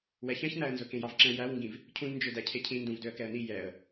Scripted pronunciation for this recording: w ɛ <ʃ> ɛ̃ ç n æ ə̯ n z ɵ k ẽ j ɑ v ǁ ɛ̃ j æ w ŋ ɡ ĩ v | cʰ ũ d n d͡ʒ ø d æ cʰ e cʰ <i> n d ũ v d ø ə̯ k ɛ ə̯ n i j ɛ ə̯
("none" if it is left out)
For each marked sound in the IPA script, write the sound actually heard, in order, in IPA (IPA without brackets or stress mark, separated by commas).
ç, ĩ